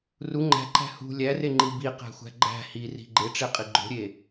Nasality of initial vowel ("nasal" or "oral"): oral